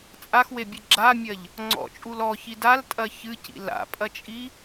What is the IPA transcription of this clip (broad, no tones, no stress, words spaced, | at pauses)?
t͡sʼaxwebʲɨ ɡ͡ǁamʲɐʎ | ŋ͡ǀɔ̰t͡ʃʼul ɔçid altʼɐ çɨcḭ la̰pʼɐt͡ʃʼi